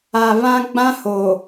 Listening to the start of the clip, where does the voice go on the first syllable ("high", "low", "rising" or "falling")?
low